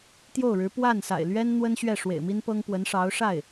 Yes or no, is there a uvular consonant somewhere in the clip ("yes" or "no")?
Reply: no